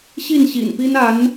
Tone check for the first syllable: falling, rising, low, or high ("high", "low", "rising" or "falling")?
falling